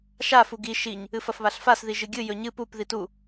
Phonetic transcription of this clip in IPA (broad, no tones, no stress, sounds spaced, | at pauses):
ʃ a f u ɡ i ʃ i ɲ | ɨ f ɐ f β a ɬ f a s ð i ʒ ɨ ɡʲ ɨ j ɵ ɲ ɨ p u p ð i t u